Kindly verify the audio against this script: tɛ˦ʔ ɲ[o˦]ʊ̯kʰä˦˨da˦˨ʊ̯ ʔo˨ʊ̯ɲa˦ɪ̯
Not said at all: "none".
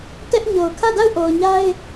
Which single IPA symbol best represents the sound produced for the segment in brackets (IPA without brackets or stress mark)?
o˨